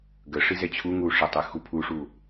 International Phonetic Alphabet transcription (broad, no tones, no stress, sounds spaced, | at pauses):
ɡ ə ʂ i z ɛ t͡ɕʰ u ŋ u ʂ ə tˤ y x u pʰ u ʂ u